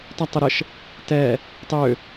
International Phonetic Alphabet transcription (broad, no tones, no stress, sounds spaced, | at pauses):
t ɒ tˤ o ɾ ə ʃ | t ɛ | tˤ ø